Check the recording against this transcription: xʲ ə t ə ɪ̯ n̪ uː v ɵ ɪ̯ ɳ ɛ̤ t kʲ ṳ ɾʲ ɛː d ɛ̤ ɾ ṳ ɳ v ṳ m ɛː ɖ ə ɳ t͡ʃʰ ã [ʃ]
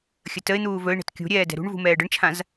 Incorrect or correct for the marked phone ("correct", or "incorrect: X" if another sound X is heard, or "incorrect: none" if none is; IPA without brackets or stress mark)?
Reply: incorrect: z